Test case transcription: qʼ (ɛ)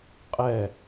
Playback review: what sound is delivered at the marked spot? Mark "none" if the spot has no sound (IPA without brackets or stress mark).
ɛ